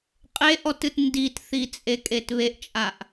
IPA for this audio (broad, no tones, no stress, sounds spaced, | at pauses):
qʼ e ʔ ɔ t ɨ t n d i t θ i t͡sʼ e kʼ e t β e ʔ t͡ʃʼ a ʔ